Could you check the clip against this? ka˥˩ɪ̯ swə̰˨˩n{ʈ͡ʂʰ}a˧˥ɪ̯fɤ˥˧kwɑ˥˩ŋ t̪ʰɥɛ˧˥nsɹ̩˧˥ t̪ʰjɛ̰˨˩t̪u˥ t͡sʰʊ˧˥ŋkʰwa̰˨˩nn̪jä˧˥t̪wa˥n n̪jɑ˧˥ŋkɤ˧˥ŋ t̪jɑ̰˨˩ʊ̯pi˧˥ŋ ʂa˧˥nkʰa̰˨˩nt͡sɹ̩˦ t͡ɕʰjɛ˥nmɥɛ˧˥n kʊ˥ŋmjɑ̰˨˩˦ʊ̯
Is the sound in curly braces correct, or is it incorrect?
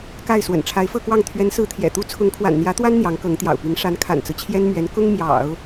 correct